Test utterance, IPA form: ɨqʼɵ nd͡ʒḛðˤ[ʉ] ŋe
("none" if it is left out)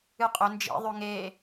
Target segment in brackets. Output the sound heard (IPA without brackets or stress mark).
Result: ʉ